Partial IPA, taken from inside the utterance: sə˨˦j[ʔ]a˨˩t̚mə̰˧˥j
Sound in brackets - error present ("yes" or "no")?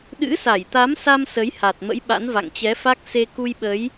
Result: yes